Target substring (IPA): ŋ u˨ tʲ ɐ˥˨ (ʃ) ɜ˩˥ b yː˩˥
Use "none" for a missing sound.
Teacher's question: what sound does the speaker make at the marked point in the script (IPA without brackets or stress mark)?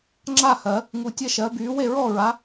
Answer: ʃ